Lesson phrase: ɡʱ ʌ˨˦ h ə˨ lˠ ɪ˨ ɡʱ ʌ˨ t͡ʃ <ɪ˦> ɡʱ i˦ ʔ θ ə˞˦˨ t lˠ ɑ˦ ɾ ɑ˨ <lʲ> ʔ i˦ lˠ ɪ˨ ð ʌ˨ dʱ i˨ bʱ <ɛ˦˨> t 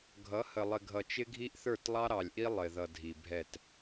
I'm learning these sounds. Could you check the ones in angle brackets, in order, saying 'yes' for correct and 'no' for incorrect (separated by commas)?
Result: yes, yes, yes